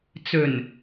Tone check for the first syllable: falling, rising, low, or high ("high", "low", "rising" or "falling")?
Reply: low